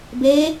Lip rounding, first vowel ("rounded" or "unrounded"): unrounded